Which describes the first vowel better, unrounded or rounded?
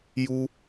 rounded